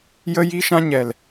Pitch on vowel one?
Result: high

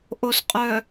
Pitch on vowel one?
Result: low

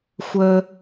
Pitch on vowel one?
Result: high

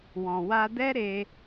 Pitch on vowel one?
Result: low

